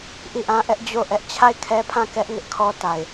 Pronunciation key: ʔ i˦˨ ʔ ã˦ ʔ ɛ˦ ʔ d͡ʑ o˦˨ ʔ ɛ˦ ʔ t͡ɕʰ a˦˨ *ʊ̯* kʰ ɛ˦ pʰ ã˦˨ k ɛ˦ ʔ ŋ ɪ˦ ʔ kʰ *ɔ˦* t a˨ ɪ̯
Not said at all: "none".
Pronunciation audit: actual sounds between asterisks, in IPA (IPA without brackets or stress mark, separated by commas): ɪ̯, ɔ˦